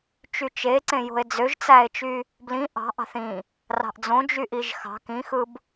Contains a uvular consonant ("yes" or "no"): no